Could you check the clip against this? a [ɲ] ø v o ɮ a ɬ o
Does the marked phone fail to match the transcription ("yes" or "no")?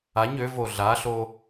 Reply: no